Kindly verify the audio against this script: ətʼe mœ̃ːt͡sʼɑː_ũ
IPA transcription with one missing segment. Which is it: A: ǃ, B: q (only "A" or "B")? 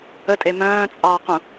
B